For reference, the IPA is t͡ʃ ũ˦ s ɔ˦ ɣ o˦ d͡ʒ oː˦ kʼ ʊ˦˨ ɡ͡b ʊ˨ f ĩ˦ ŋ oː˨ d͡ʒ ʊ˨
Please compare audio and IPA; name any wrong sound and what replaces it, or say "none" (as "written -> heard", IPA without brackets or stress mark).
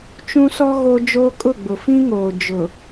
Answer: none